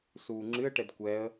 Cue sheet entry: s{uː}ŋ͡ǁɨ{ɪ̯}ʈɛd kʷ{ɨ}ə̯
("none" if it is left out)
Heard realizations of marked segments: uː, ə̯, ɛ

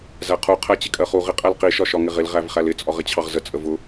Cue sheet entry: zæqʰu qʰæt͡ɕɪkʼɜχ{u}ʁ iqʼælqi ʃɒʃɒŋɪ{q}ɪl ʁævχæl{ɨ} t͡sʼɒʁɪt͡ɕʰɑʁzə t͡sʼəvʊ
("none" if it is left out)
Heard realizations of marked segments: u, ʁ, ɪ

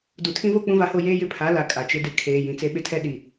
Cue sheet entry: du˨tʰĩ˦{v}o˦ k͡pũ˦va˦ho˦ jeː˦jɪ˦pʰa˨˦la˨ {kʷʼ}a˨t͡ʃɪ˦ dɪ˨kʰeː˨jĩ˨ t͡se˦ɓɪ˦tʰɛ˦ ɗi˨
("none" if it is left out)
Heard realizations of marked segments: v, kʼ

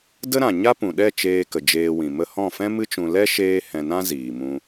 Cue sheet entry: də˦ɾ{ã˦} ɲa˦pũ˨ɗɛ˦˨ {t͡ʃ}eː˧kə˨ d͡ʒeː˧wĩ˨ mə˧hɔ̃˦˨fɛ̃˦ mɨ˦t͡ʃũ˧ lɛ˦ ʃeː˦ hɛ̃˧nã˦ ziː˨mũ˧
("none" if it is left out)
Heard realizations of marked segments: ã˨, t͡ʃ

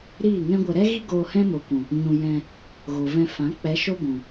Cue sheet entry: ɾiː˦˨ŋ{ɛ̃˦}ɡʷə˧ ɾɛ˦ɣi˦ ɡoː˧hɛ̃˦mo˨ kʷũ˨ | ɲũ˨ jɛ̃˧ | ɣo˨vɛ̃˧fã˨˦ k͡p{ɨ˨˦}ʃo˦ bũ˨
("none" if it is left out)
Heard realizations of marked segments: ɛ̃˦, ɛ˨˦

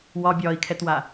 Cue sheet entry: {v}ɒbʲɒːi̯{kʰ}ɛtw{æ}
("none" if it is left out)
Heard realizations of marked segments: w, kʰ, a

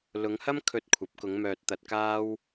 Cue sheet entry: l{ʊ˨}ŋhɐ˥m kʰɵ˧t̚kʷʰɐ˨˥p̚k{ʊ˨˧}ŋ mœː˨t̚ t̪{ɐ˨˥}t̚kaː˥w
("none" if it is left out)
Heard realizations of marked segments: ʊ˨˧, ʊ˨˧, ɐ˧

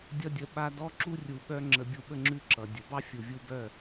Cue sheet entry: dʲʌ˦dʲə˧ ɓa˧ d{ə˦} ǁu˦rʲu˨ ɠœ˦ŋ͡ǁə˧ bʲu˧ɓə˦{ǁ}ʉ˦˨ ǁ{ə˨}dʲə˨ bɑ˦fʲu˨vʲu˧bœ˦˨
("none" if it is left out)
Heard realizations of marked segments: ɔ˦, ŋ͡ǁ, ʌ˨

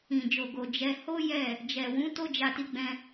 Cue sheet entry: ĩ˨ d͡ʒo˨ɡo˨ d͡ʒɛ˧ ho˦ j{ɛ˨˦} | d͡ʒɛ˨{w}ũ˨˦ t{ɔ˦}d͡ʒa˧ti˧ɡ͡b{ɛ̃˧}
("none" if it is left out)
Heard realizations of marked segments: ɛ˦˨, w, o˦, ɛ̃˧

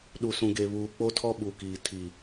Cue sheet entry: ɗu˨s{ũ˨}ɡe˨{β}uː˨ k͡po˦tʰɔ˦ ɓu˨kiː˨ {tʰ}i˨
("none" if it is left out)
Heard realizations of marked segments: ũ˨, β, tʰ

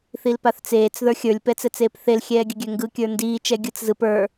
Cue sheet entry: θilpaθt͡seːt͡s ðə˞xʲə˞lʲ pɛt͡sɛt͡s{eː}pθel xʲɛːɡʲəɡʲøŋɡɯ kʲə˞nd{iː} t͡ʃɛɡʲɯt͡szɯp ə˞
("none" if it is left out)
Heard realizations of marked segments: eː, iː

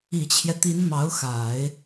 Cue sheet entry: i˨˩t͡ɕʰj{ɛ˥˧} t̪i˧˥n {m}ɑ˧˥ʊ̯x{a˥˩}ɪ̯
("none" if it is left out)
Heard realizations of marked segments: ɛ˦, m, a˨˩˦

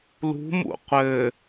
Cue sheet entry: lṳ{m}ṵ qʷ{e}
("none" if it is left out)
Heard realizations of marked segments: m, ɘ

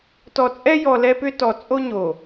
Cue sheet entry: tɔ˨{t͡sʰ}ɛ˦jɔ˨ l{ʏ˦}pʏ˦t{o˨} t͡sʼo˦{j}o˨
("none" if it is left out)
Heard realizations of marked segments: t͡sʼ, ɛ˦, ɔ˨, ɲ

